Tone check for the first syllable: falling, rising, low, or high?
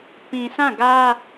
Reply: low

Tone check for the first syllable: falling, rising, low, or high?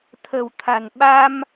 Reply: low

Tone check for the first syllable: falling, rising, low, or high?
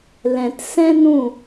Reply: low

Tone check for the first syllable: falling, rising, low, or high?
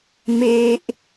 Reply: high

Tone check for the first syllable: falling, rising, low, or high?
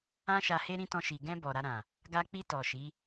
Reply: high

